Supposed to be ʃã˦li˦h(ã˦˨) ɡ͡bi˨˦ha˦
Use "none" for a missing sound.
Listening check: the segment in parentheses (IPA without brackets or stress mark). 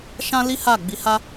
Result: a˦˨